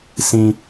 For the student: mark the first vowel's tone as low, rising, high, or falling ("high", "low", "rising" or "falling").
high